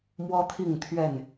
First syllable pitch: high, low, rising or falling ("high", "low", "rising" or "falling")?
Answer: high